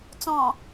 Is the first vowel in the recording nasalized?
yes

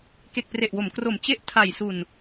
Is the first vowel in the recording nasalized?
no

